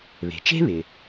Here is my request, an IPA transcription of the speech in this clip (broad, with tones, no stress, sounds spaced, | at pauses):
β e̤˩ t͡ʃ e̤˥ β ɪ˩